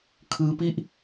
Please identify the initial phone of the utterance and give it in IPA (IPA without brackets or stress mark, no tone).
kʰ